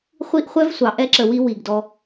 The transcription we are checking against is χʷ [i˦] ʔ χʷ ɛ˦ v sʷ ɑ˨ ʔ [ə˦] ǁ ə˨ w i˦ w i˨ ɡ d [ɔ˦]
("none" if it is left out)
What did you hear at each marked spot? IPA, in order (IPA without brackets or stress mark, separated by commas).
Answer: i˦, ɛ˦, ɔ˦